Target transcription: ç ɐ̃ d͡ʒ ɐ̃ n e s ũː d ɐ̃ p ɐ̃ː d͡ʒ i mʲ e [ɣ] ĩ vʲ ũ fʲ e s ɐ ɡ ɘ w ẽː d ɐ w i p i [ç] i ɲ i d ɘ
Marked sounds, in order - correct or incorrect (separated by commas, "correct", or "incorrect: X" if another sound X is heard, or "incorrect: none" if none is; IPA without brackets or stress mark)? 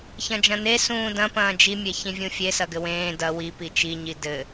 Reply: incorrect: ç, incorrect: t͡ʃ